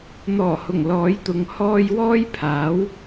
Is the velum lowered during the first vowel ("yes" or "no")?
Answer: no